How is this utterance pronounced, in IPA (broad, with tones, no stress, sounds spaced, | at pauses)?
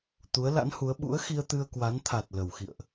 t̪ u˨˦ ə̯ l a̰˧˥ n h u˨˦ ə̯ ɓ ṵ˧˥ ə̯ x i˧ ə̯ t̪ ɨ˧ ə̯ k w a˨˦ n t̪ʰ a˨˩ t̚ l ə˨˩ w x ḭ˧˨ ə̯ ʔ